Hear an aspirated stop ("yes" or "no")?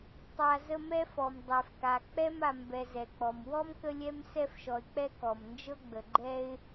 no